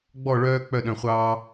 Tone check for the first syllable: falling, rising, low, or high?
falling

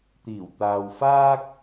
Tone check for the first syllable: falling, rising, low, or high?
low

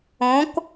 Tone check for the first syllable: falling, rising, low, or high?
rising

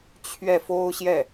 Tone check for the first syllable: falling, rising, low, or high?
falling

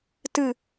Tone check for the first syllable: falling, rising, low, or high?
falling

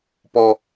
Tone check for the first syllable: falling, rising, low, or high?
high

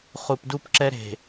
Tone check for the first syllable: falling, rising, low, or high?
low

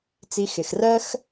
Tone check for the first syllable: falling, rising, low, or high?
low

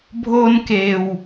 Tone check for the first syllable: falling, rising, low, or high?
high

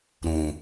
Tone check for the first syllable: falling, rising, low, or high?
low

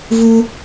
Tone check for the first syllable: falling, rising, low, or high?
high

